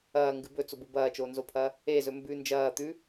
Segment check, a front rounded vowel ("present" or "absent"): absent